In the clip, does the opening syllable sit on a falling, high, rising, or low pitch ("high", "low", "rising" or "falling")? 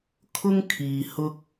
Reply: high